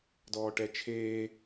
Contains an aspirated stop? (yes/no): yes